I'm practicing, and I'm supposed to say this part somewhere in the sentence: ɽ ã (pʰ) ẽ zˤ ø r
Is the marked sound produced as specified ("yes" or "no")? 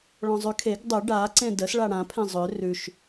yes